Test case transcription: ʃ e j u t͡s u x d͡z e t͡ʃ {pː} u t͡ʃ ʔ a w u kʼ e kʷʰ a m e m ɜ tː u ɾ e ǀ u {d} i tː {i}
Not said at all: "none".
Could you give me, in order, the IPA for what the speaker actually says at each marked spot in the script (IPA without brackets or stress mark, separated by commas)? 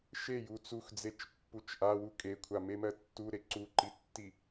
pː, ǃ, i